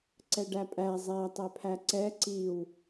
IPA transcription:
ǀ ɛ ɖ æ pʼ æ zˤ æ tˤ ɛ pʰ æ ǀ ɛ ǀ i w

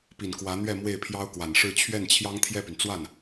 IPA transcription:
p i˨˩ n k w ä˧˥ n̪ ɥ ɛ˥˧ m w e˥˩ ɪ̯ pʰ j ɑ˥ ʊ̯ k w a˨˩ n ʂ ɻ̩˥˧ t͡ɕʰ ɥ ɛ˥˩ n t͡ɕʰ j ɑ˥ ŋ t̪ʰ j ɛ˥˩ p y˩ n t͡s w a˥˩ n

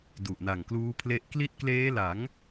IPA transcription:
d u˨˩ ʔ n a˨˩ ŋ k l uː˦˥ pʰ l e˦˥ ʔ k l i˦˥ t̚ k l eː˦˥ l a˩˦ ŋ

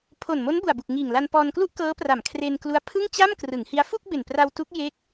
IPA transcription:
pʰ o˨˩ n m o˦˥ n b u˨˩ a̯ b u˨˩ k̚ ŋ iː˨˩ ŋ l a˧ n p ɔː˧ n k l u˥˩ ʔ k ɤː˦˥ p r a˨˩ m kʰ r e˧ n k l u˦˥ a̯ pʰ ɯ˥˩ ŋ t͡ɕ a˥˩ m k r ɯ˩˦ ŋ h i˦˥ a̯ f u˥˩ k̚ b e˨˩ n p r a˧ w t u˦˥ k̚ j e˦˥ k̚

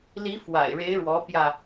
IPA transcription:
l i˧˥ f w a̰˨˩ ɪ̯ ɻ e˧˥ ɪ̯ ɻ w ɔ˧˥ p j ä˧

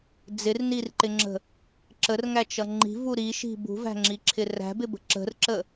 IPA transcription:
d͡z ɪ r n i r ǃ ɪ ŋ͡ǁ ə̤ | ǁ ə r ŋ æ t͡ʃ ʌ ŋ͡ǃ i̤ v u ɾ i ʃ i̤ b ṳ v æ̤ ŋ͡ǁ i ǁʰ ɪ r æ̤ b ɪ b ə̤ ǁ ə̤ r ǁ ə

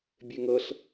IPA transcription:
bʲ e ŋ ɤ ɬ

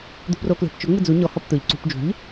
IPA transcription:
d̪ ṳ p r o k l e̤ p t͡ʃ ʊ ŋ͡m ɪ d͡z u ɲ ɔ h ɔ p t̪ ʊ ʎ ǀ ṳ p d͡ʒ ṳ ʎ

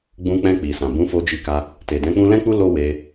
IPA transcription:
ɡ͡b ũ˧ k͡p ɛ̃˧ k͡p i˨ s ã˨ b ũ˨˦ f o˧ d͡ʒ i˧ k a˧ | t e˨ d ɛ̃˨˦ k͡p ũ˦ l ɛ̃˦ k͡p u˦ l o˦ w e˧

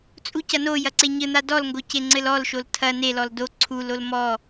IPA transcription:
t͡sʼ u c ɐ n o j ɐ ǀ e ɲ ɘ n̪ a d ɔ l ŋ ɡ o c e ŋ͡ǀ ɘ l ɔ l ʃ o l tʰ ɐ n e l ɔ l d o ǀʰ u l o l m ɔ

